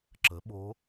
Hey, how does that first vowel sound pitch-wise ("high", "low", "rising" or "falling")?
rising